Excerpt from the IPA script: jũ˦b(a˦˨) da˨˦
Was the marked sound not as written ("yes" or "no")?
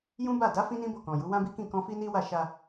no